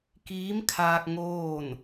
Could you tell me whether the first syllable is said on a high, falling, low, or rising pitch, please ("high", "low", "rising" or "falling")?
rising